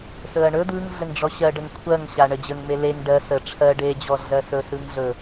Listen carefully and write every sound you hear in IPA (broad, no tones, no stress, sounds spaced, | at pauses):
s ɵ ɐ̯ ɳ ɵ d̪ ɯ ŋ ɮ ə ŋ ɖ͡ʐ ɔ ɕ ɜ ɖ ə ŋ kʷʰ ɜ ŋ ɕ a ɳ ə d͡ʑ ə ŋ m e l e ŋ ɖ ɜ s ə ʈ͡ʂʰ ɜ ɖ e d͡ʑ ɔ ɮ ɜ s ɵ s ɯ ŋ ɮ ɵ